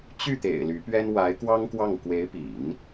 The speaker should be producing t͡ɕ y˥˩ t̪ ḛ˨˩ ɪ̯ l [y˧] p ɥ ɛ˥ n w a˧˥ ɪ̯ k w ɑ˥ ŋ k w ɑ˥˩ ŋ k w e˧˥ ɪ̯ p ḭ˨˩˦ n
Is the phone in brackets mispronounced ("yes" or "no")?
yes